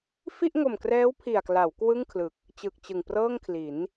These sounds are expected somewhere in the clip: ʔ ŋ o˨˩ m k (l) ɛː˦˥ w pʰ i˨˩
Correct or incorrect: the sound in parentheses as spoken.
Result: incorrect: r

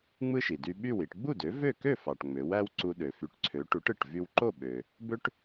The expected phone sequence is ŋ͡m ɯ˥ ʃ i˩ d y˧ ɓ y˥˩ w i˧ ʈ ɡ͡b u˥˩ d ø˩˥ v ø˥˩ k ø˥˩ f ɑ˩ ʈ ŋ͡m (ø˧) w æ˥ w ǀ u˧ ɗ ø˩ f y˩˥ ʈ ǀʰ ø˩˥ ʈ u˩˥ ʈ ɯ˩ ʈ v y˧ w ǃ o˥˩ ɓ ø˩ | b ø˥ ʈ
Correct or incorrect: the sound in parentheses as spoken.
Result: incorrect: ø˩˥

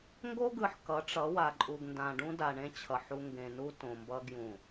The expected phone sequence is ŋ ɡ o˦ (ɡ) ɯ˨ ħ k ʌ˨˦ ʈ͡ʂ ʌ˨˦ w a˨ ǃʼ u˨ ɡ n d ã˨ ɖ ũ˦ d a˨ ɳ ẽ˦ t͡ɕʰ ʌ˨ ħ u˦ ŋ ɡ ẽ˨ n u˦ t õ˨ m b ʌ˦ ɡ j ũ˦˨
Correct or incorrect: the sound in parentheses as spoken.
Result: correct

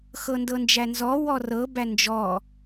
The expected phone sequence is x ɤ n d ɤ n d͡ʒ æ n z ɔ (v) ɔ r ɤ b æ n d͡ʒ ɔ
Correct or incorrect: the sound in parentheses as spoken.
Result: incorrect: w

